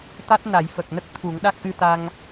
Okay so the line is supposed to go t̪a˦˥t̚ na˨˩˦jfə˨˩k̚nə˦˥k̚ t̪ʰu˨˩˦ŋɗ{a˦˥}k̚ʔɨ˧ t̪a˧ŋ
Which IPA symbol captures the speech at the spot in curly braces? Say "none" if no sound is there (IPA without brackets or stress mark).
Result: a˦˥